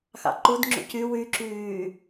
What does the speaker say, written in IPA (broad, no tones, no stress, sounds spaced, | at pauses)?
x ɑ̰ ǃ u d ŋ͡ǁ ṵ c y w y ǁ yː